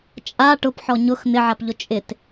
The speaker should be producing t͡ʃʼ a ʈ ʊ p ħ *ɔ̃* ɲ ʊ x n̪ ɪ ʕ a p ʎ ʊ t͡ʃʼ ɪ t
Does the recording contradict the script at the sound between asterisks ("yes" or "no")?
yes